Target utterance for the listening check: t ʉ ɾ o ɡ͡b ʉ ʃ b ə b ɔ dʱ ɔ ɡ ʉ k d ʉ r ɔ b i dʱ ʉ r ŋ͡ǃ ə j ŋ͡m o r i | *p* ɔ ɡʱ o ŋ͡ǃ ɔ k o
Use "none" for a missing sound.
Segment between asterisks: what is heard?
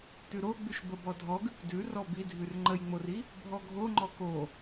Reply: bʱ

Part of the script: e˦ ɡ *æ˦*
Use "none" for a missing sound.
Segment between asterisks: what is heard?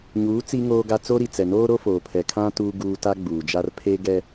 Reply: ɛ˦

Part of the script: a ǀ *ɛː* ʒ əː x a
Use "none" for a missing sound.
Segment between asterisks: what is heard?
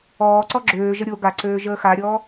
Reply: øː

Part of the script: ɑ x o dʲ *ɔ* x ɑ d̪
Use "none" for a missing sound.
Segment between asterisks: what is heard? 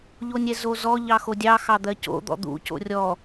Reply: ɑ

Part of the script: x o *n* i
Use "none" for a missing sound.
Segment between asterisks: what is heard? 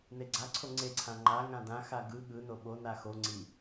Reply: ŋ͡ǀ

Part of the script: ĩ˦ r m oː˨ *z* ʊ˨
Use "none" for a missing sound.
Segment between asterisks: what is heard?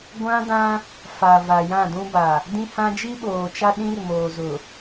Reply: z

